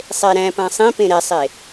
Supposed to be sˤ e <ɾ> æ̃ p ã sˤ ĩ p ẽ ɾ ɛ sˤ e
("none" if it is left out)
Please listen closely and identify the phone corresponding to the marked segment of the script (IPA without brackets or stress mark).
ɾ